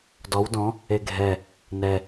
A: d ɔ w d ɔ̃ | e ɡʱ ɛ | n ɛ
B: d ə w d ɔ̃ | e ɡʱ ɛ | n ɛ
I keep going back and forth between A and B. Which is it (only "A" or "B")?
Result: A